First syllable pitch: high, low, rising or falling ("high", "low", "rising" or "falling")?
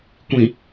low